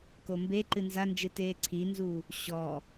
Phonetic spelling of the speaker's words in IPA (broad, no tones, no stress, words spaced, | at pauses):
kombe ǃɨnzand͡ʒɨteː ǀʰinzu | ɕɔ